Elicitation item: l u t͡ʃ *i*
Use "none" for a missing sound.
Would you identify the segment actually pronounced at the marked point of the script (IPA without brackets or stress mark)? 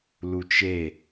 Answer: e